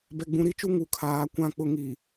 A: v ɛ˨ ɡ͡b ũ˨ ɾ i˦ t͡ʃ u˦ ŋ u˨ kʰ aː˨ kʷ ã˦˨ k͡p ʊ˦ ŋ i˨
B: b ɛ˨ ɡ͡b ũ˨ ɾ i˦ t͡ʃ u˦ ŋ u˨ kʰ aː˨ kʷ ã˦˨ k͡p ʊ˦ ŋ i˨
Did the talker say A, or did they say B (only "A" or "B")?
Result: B